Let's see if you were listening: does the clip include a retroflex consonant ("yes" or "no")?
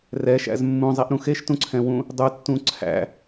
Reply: no